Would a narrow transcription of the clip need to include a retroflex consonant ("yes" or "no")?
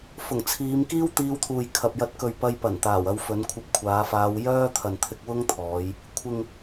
no